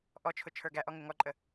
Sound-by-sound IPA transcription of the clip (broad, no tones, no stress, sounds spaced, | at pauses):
ʔ ɔ t͡ʃʰ ʊ t͡ʃʰ ə˞ ɡ æ ʔ ɔ ŋ ɪ ŋ ɔ ǃʼ ə